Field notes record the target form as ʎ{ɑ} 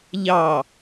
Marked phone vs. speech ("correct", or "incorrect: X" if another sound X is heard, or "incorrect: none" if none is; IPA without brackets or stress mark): correct